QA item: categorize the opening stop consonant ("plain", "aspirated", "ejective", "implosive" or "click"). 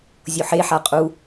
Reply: ejective